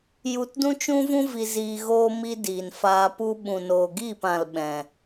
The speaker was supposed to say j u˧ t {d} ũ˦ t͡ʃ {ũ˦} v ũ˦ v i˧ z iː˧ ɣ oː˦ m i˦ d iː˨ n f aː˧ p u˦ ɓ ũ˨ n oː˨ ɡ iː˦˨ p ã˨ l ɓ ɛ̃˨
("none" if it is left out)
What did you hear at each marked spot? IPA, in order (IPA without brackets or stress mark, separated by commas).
d, ũ˦